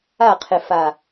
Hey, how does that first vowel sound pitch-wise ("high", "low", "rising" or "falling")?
falling